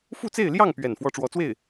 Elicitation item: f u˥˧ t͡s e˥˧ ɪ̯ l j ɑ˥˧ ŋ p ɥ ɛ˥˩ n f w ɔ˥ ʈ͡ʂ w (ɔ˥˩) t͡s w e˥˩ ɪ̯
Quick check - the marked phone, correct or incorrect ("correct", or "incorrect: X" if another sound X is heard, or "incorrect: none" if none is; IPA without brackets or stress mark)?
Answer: incorrect: ɔ˧˥